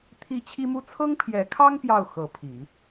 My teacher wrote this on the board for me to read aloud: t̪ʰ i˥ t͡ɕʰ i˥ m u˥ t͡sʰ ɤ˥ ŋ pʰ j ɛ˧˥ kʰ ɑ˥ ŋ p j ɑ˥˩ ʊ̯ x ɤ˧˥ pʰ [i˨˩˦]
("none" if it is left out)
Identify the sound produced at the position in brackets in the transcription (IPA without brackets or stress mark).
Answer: i˨˩˦